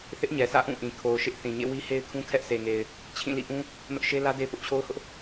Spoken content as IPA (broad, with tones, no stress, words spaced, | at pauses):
θɪ˦ʔɲɛ˨sä̰˦˨ ʔũ˦˨ʔĩ˨ kʰo˨ʊ̯ ʃɪ˦ʔ θĩ˨ɲḛ˦˨ wi˦he˦ɪ̯kʰũ˦ kʰɛ˦ʔse˨ŋe˨ɪ̯ | t͡ɕʰĩ˦˨lḭ˦˨ʔũ˦ | nʊ˦ʔʃe˦lä˦ de˦pʊ˦ʔt͡ɕʰo˦ʊ̯hʊ˦ʔ